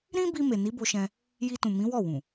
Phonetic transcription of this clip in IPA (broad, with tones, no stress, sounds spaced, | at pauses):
ɾ ĩ˦ b i˧ m e˨ n i˨˦ b o˧ ʃ ɛ̃˧ | j i˧ t ũ˨ m ĩ˨˦ w ɔ˦˨ w ũ˨